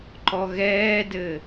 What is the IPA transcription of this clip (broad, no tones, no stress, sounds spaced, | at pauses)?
ǃ ɔ ɣ ɛː d ɘ